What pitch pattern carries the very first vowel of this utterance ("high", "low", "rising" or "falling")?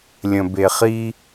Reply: low